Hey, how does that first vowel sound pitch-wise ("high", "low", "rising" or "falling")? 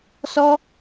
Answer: high